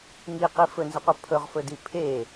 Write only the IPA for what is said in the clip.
ŋiqi fɵnzəqʷə pʰɵʁfɵdi pʰe

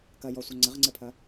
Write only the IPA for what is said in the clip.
kɐjɔsʷɘ ŋ͡ǀɘʁŋ͡ǀɘpʰɐ

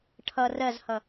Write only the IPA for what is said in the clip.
ʈʰʌ rɜzhʌ

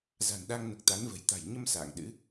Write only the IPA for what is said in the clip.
za̤˨˩nɗa˧ŋno˨˩k̚ t̪a˨˦nvə̤˨˩j t̪a̤˨˩jɲə˧m sa̰ː˧˨ŋɗɨ̰˧˥

